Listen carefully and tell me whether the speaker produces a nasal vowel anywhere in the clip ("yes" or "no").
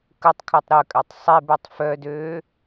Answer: no